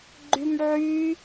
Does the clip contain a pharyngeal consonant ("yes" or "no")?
yes